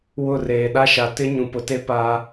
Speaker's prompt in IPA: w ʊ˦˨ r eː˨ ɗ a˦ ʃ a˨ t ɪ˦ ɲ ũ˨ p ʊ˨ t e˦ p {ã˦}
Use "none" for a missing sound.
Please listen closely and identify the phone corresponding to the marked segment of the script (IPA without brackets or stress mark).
a˦